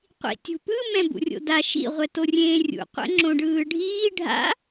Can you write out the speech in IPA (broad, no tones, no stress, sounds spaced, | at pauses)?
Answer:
qʷ ḭ tʲ ṳ p ɯ m ɛ̃ b ṵ rʲ o̰ d a ʃ ḭ ʁʷ ɛ t o rʲ ẽː rʲ ṵ qʷ ɛ̰ ŋ͡ǁ õ ɖ ɯː ɖʱ iː ɖʱ a̰